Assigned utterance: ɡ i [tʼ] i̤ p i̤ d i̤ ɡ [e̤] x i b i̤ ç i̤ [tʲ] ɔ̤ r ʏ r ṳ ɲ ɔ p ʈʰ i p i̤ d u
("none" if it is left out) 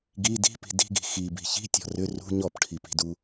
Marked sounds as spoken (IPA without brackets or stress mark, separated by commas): d, i̤, tʲ